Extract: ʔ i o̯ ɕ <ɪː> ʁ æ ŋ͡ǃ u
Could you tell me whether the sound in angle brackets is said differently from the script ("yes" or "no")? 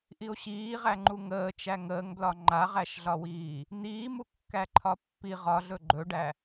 yes